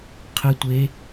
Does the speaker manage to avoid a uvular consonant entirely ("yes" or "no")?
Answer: no